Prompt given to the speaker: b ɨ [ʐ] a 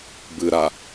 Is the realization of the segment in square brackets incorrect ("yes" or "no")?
yes